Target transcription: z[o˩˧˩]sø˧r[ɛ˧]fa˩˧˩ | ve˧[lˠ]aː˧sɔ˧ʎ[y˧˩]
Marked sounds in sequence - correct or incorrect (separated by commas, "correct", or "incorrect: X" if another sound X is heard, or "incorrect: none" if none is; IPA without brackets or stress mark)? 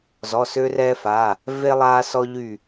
incorrect: ɔ˩˧˩, correct, correct, correct